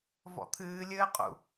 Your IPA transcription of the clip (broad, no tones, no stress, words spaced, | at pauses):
vɔ̰t̪ʰɨː lʲɘːqʼṵ